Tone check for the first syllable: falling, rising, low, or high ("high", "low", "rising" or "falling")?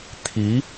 rising